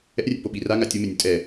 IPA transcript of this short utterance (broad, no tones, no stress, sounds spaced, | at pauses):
ɛ̰ rʲ ɛ̰ p o ɓ i r a ŋ a tʲ u m e nʲ u tʼ ɛ